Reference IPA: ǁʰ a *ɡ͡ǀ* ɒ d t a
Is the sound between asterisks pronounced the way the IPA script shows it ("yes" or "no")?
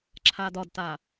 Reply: no